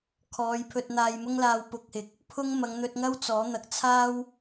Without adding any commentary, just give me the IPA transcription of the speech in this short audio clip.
kʰ ɔː˨˧ j pʰ ɵ˧ t̚ n̪ aː˧ j m ʊ˥ ŋ l aː˧ w p ʊ˧ k̚ h ɪ˨˥ k̚ | pʰ ʊ˥ ŋ m ɐ˨˧ ŋ n̪ ɵ˧ t̚ ŋ ɐ˥ w t͡s ɔː˨˥ n̪ ɐ˨ k̚ t͡sʰ aː˥ w

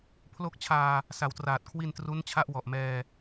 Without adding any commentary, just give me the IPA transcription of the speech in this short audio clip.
pʰ l o˦˥ k̚ t͡ɕʰ aː˧ | s a˨˩ w t r aː˨˩ t̚ kʰ w i˧ n t r u˦˥ n t͡ɕʰ a˦˥ ʔ w ɔ˨˩ ʔ m ɛː˧

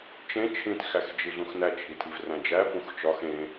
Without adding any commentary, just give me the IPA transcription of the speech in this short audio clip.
t͡ʃ ẽ t͡ʃʰ ĩ t x æ x d͡ʒ i ɮ ũ x n æ t͡ʃʰ i tʰ i v r æ̃ d͡ʒ æ p ũ x t͡ʃ ɒ x ẽ

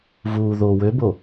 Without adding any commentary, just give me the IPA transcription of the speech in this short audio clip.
v uː ð o w ø b o

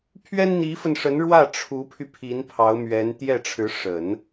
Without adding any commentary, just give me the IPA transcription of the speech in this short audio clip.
pʰ ɥ ɛ˥ n n̪ i˧˥ f ə˧ n ʂ ə˧˥ n ɻ w ä˥˩ ʈ͡ʂʰ u˧˥ pʰ y˧ pʰ i˧˥ n pʰ ɑ˧˥ ʊ̯ m ɥ ɛ˧˥ n t̪ j ɛ˥˩ ʈ͡ʂʰ ɻ̩˧˥ ʂ ə˨˩˦ n

